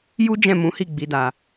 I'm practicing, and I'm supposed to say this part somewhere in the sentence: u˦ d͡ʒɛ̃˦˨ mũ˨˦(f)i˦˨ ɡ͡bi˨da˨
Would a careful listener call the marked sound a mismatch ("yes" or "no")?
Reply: yes